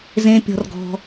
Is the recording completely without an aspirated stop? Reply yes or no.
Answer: yes